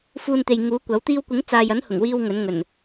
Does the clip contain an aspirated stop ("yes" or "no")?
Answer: no